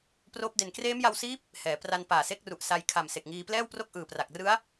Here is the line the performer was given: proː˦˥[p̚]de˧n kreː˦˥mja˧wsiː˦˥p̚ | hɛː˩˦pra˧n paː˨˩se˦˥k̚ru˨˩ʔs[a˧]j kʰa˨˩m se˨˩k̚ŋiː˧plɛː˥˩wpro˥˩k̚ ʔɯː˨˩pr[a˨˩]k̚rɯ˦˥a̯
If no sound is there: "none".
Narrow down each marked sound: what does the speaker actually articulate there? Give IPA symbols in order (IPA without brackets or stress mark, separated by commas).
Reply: p̚, a˧, a˨˩